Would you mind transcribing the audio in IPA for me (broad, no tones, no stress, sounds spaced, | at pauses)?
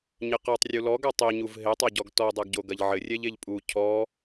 ɲ ɘ q ɔ tˤ rʲ u l ɔ ɡ a tˤ i ɲ u v ɦ e tˤ a ɟ ɔ ɡ t ɔ dˤ a ɡ ɟ o ɡ ɐ ʎ ʕ ɘ rʲ ɛ ʎ e ʎ pʼ u cʰ ɔ